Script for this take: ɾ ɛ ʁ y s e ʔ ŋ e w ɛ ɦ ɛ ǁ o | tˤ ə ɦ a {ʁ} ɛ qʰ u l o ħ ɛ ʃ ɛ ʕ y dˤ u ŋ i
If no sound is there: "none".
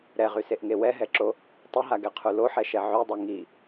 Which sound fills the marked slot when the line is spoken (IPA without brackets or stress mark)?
ɡ